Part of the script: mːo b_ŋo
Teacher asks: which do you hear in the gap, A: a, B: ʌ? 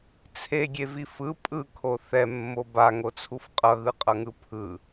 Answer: A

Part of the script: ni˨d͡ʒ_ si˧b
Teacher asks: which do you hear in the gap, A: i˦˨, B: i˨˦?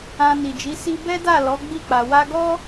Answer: B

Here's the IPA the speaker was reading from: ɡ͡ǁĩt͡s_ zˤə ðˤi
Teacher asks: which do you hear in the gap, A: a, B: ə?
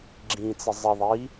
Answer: B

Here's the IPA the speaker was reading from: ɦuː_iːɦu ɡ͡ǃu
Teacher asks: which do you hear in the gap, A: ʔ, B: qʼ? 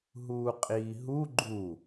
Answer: B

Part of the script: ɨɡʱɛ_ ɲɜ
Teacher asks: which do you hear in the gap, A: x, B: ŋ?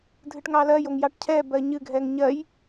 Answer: B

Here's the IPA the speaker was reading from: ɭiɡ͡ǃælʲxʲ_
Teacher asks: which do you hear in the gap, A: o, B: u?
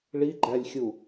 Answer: B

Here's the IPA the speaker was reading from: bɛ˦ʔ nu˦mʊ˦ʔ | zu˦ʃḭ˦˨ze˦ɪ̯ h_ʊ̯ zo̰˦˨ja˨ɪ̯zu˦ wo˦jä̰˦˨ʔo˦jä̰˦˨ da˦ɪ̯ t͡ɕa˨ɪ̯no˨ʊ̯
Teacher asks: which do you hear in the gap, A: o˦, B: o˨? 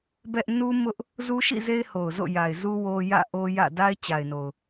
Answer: B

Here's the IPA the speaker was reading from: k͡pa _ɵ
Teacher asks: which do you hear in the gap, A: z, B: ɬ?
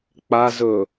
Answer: A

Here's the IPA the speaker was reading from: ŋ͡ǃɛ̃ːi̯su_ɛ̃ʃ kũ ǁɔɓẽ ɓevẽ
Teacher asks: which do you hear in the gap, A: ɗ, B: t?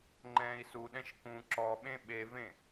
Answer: A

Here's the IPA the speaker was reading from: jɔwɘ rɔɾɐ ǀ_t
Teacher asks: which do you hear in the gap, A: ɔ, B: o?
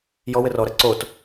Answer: B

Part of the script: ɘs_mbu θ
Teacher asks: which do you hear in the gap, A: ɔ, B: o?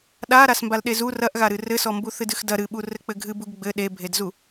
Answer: A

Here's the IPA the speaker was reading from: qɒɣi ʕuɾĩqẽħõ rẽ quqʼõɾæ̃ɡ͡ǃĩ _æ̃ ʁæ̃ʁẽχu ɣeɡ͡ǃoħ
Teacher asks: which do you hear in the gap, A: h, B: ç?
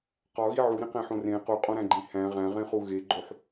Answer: A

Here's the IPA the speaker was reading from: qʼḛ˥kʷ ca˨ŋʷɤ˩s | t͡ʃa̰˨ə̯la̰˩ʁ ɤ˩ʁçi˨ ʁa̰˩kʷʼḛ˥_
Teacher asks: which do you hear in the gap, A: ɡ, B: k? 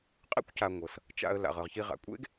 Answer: A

